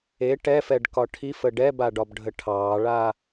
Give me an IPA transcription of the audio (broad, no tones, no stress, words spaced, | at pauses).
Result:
e ʈɛfɛɖkɒ ʈʰifə ɖɛbaɖɒbɖʱə ʈʰɑːɭa